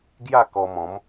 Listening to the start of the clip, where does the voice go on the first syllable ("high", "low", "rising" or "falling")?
falling